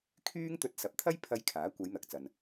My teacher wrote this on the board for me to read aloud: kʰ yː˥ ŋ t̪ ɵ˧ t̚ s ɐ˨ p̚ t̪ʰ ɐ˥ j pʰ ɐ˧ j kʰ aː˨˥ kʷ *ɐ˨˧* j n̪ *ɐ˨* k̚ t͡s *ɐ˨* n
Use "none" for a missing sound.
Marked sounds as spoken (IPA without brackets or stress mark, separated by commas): ɐ˨˧, ɐ˨, ɐ˨